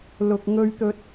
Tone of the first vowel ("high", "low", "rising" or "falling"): low